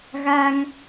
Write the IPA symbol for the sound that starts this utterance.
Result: ɣ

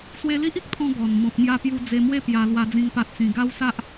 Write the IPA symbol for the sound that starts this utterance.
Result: s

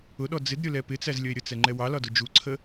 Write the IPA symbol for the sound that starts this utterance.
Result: ʊ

